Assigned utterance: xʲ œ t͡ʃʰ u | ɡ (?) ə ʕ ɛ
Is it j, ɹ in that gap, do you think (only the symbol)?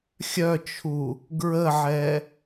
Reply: ɹ